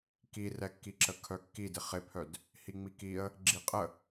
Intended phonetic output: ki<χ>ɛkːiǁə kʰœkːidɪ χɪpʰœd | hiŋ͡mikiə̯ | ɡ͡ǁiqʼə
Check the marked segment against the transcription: incorrect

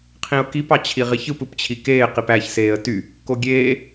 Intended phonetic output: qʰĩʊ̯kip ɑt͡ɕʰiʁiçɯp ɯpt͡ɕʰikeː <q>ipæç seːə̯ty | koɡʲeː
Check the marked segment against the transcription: correct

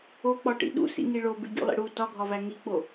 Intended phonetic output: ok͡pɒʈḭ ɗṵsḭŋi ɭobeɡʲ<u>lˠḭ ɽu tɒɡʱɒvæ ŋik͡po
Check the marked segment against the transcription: incorrect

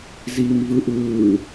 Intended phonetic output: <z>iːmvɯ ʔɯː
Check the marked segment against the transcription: correct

